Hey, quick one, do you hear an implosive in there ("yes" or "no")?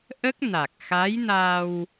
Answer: no